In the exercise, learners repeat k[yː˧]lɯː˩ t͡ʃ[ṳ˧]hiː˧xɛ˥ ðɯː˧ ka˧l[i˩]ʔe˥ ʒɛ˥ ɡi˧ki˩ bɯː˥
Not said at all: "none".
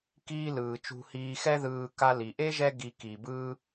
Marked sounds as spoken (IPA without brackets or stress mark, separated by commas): iː˧, ṳ˧, i˩